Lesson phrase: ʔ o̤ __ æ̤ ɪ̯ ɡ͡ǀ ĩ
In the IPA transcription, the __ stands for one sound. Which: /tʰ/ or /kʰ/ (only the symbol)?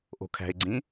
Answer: kʰ